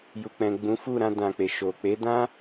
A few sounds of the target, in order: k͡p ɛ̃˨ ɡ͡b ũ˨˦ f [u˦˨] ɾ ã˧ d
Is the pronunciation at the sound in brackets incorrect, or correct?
correct